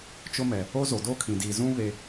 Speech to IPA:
t͡ʃ ʊ˦ m ɛ˨ | o˦ z o˨ d o˦ kʰ ĩ˨ d i˨ z ũ˦ β e˨

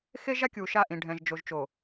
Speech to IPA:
x e˦ ʒ a˦ kʲ u˨ ʃ a˦˨ ʔ ĩ˨ ɖʱ ɛ̃˨ ʒ d͡ʒ o˨ ʒ t͡ʃ o˨

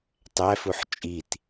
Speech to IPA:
tˤ æ f u ħ t͡ʃʼ i t

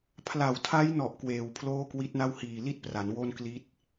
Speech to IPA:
pʰ l a˨˩ w tʰ a˦˥ j n ɔ˨˩ ʔ k w eː˨˩ w pʰ l oː˥˩ k w i˦˥ t̚ n a˥˩ w h iː˨˩ l i˥˩ t̚ p r a˩˦ n w o˥˩ n k l i˦˥ t̚

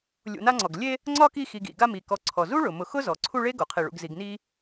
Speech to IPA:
lʲ ṵ˨ n a˦ ŋ͡ǀ ɔ˩ ɡ lʲ e˥ | ŋ͡ǀ ɒ˥ k i˦ x i˨ ɡ ḭ˩ ɡ a˦ m i˩ k ɔ˨ ǀʰ ɔ˩ z u˥ ɭ ʊ˩ m ʊ˨ x ʊ˥ z ɔ˩ ǀʰ u˦ ɭ e˥ ɡ o˩ qʰ i˨ ɭ ṵ˨ ɡ z i˨ ɡ n i˦

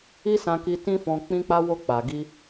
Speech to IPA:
i˦ s ã˧ k i˧ t ĩ˦ f ɔ̃˧ k͡p ĩ˧ k͡p a˧ w o˧ k͡p a˨ ɡ i˧

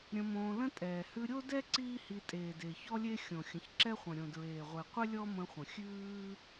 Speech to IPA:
ɾʲ ə̃˧ m õː˧ l ə̃˦ tʼ ɛː˨ h ʉ˧ ɾʲ o˦ d ɛ˦ ǀ iː˦ h i˧ tʼ eː˨ d e˨ ç ɔ˦ lʲ e˦ xʲ õ˨ xʲ ə̃˨ ç ǁ ɛ˦ χʷ ə̃˨ ɾʲ õ˨ d ɹ eː˨ ʁʷ e˨ qʷ ɪ˦ lʲ ɔ˦ m ə̃˧ χʷ ə̃˨ xʲ ʉː˦

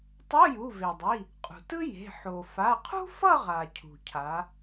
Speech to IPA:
tˤ o˧˥˧ j u˩˧˩ v e˩ dˤ i˩˧˩ | qʼ ṳ˩ t ɯ˥ j e̤˩˧˩ ħ o˩ f a˩˧˩ qʰ ṳ˥ f ʌ˥˧ ʁ a˩ cʰ ṳ˩ cʰ a˩˧

